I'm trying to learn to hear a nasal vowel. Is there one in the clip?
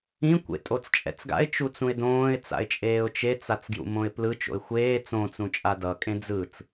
yes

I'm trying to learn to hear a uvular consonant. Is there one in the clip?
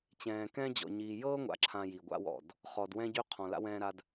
yes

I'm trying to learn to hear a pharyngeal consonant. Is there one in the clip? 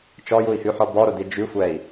yes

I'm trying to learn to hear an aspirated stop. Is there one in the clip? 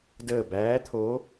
yes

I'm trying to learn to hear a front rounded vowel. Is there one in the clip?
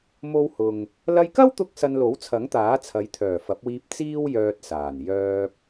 yes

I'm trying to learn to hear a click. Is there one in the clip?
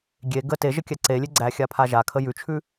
yes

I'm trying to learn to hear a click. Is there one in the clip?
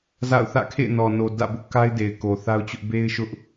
no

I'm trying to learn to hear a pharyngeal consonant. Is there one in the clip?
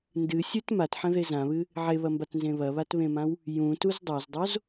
yes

